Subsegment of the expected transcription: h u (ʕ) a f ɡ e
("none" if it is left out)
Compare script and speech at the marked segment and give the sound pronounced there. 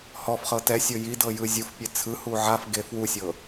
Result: ʕ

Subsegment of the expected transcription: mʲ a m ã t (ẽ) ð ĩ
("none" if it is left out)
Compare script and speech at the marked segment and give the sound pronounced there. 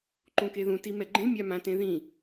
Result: ẽ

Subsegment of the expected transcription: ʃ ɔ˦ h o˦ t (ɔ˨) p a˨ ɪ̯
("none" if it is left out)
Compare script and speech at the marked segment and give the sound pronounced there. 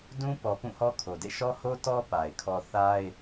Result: ɔ˦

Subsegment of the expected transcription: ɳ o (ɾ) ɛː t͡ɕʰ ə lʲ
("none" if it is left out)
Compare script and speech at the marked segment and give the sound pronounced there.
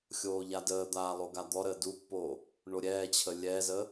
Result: ɾʲ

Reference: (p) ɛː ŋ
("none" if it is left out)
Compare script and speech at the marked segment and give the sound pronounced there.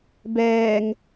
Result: b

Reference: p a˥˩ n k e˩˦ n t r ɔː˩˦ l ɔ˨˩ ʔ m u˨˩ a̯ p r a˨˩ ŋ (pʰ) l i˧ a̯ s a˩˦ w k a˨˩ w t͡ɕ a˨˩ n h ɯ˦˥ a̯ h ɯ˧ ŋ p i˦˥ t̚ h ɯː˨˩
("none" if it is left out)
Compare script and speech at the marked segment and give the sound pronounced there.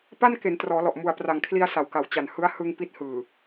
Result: kʰ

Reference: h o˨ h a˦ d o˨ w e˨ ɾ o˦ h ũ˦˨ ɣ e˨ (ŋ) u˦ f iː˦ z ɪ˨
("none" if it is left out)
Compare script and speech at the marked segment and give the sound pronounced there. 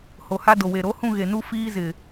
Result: n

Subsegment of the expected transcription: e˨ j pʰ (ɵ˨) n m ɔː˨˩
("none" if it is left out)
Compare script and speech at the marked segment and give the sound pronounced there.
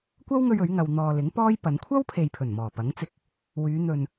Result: ɵ˨˩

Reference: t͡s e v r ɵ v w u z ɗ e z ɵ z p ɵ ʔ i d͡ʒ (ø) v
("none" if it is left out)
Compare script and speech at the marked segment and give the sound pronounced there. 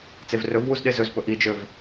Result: ø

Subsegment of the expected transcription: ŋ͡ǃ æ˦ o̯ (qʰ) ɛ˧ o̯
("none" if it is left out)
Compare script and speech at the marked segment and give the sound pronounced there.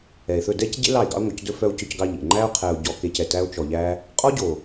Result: qʰ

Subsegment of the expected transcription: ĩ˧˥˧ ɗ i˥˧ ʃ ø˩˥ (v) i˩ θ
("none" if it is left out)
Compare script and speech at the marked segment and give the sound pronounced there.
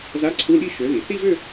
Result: ð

